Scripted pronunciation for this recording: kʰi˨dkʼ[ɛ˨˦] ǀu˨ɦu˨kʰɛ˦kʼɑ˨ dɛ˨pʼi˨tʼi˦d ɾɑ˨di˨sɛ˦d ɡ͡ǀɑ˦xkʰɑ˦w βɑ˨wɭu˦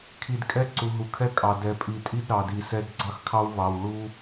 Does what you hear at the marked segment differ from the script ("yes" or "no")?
yes